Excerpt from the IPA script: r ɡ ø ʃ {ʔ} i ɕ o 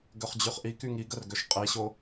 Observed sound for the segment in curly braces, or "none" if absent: qʼ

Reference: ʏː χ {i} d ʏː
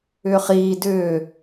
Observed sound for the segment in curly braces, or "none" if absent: iː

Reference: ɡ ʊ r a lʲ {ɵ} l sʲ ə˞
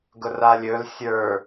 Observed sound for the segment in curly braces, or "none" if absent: ɵ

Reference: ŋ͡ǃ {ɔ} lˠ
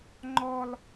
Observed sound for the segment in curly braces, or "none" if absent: ɔ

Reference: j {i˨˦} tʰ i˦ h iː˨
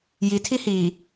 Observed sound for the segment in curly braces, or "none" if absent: i˨˦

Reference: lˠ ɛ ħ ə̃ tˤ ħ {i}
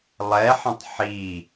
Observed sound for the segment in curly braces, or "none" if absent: i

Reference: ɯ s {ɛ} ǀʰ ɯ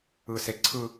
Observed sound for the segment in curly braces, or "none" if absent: e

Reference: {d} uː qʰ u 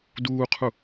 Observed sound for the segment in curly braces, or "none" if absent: d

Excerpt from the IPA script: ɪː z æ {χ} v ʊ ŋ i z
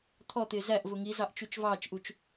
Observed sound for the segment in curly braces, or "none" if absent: ʔ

